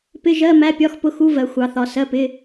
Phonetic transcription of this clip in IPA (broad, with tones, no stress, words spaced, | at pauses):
pɪ˧˥˧ʒɜ˧˥˧ mæ˧˥˧pʲɒ˧˥˧xpʊ˧˥˧xu˧˥˧ vɜ˨˥xʷɑ˨˥θɒ˨˥ sɜ˧˥˧pɪ˧˥˧